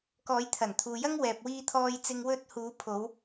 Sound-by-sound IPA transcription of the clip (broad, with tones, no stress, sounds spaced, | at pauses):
k ɔː˨˧ j t̪ʰ ɐ˨˩ n t̪ʰ uː˨ j ɐ˥ ŋ w ɛː˨ p̚ w iː˧ t̪ʰ ɔː˧ j t͡s ɪ˧ ŋ w ɵ˥ t̚ h uː˨˧ pʰ o˨˧ w